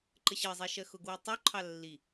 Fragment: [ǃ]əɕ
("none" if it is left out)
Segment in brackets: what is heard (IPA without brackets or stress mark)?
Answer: ǃ